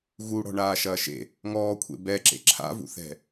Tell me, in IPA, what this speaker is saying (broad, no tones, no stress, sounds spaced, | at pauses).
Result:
ɣ u ɽ ɔ̤ ɳ aː ʃ ɐː ʃ ḛ | ŋ ɔː kʷʰ ḛ b ɛ ǁ ḛ ǁʰ a̰ v ṵ θ ɛ̤